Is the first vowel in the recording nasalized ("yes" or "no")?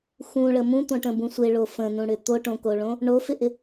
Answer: yes